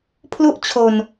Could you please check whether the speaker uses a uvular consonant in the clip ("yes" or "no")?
no